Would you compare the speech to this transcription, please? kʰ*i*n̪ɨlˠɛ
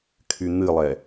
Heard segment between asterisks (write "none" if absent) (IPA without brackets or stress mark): y